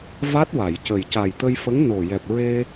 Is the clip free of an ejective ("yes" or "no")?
yes